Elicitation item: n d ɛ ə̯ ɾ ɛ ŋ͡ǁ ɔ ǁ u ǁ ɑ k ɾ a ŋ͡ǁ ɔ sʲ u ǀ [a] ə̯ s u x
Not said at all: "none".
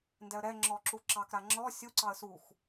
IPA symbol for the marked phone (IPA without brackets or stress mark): ɑ